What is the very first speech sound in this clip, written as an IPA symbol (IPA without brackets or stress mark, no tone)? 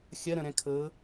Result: xʲ